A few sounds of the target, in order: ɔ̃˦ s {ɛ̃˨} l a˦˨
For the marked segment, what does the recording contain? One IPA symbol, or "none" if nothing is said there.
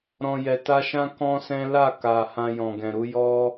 ɛ̃˦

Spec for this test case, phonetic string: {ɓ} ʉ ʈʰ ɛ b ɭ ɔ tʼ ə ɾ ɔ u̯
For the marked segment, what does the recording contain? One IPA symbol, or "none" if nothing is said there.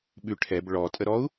ɓ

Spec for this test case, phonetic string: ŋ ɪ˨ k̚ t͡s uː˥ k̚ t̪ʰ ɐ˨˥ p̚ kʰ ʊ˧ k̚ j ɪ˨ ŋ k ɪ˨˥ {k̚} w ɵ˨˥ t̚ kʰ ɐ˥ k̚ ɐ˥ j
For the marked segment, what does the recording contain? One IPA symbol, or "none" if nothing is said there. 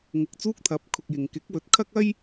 k̚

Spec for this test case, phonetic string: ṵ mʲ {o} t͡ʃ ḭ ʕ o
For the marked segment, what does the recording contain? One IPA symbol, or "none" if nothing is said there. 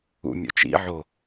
o̰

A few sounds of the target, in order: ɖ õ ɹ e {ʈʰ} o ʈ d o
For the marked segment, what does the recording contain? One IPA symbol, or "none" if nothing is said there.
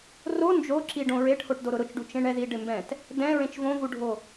ʈʰ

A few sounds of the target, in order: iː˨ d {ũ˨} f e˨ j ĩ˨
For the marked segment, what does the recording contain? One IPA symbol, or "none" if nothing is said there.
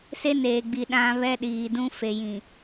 ũ˦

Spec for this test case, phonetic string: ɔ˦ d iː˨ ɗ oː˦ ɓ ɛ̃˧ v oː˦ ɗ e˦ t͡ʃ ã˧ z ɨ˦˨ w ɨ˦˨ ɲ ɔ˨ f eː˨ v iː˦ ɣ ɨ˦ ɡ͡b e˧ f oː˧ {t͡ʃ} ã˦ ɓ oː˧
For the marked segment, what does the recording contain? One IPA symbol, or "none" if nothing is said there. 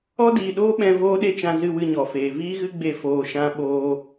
ʃ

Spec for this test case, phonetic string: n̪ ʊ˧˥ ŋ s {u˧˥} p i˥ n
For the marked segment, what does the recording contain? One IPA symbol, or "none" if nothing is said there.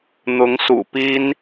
ṵ˨˩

